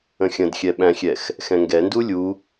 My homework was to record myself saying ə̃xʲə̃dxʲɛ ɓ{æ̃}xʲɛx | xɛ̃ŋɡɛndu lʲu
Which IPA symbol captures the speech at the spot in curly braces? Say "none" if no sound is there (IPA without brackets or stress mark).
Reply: æ̃